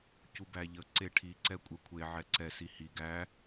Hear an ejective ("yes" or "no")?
yes